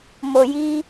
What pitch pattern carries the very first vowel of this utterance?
low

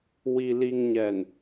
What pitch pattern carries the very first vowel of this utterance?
low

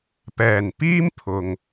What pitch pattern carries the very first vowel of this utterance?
low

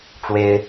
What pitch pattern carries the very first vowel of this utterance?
high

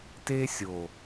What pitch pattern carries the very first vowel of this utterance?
high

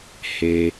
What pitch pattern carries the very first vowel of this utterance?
low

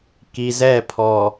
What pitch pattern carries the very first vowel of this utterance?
low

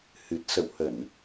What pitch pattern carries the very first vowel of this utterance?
low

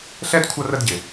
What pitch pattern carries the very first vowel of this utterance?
high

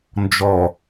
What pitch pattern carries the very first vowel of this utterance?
low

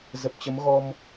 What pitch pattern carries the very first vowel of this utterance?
low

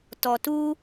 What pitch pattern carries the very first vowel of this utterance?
low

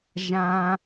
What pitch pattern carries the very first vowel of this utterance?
high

